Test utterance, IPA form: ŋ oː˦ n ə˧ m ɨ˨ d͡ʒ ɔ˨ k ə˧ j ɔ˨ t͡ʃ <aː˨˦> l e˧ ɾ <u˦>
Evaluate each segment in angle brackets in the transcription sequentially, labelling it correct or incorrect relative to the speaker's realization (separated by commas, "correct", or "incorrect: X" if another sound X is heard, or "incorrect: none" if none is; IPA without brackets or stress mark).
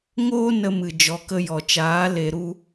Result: correct, correct